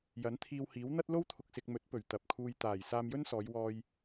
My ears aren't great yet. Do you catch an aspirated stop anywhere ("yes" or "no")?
yes